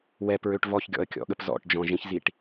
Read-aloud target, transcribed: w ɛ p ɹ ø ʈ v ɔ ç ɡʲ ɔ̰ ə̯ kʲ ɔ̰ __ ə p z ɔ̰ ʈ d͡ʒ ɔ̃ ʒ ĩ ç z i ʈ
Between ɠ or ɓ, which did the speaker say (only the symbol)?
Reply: ɠ